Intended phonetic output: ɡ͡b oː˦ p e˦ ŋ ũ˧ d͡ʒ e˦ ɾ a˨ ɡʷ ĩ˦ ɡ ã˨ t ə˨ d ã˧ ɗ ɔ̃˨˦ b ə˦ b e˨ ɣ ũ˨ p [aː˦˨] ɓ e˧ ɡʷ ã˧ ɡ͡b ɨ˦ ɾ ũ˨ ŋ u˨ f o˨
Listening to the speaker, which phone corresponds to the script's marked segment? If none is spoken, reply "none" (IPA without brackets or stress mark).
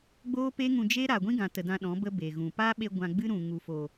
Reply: aː˦